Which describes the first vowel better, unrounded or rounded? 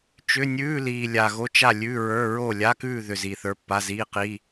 rounded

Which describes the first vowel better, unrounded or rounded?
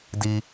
unrounded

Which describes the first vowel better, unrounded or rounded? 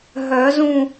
rounded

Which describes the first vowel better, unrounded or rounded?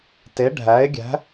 unrounded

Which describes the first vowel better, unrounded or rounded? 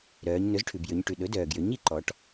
rounded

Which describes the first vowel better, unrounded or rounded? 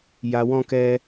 unrounded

